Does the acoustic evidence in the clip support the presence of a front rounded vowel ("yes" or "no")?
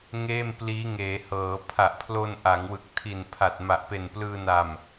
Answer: no